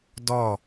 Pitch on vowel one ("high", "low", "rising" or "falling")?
falling